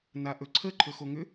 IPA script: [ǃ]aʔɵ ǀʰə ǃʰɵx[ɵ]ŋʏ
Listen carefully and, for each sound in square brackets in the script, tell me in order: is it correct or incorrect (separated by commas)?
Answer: incorrect, incorrect